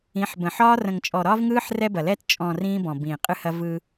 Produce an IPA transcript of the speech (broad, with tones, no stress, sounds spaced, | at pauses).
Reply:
ĩ˨˦ ħ b ə̃˨ ħ ɒː˦ r ə̃˨ ŋ t͡ʃʼ ɔ˨ ɾ ɒː˦ v ŋ ɯː˦ ħ r ɛ˦ b ɐ˨ l ɛ˦ t t͡ʃʼ ɔ̃˨ r ĩː˦ b ɔ̃˨ b ĩː˨ qʼ ɨ˦ h ɐ˦ v ɯ˦